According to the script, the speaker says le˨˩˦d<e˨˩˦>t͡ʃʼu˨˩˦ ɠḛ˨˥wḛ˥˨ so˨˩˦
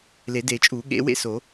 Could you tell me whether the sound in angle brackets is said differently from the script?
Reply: no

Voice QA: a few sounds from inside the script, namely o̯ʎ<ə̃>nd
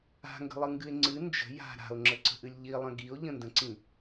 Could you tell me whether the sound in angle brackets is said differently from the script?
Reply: no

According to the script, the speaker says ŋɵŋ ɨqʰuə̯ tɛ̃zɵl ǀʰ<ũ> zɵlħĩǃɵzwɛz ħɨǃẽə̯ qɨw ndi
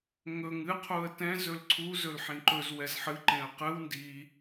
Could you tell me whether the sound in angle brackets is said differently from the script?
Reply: yes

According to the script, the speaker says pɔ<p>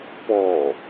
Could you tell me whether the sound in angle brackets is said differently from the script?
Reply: yes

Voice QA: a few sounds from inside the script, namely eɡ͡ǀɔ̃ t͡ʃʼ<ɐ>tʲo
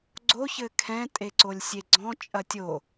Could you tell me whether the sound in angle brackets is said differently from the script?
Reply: no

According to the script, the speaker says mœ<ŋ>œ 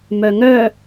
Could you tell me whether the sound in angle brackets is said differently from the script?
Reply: no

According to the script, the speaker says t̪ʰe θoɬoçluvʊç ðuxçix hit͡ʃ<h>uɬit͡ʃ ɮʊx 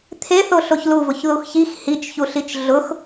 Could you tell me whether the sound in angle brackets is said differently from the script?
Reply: yes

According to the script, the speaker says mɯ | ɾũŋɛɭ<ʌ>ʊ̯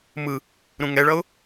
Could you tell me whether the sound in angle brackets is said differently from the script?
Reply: no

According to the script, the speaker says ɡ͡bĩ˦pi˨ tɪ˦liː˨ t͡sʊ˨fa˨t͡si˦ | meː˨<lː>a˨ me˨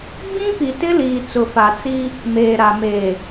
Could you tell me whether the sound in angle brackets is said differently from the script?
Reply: yes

